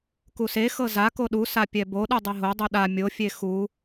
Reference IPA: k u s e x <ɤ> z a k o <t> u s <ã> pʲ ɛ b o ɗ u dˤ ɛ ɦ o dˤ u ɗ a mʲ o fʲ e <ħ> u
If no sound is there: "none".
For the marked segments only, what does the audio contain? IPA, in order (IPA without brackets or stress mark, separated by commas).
ɤ, ɗ, a, x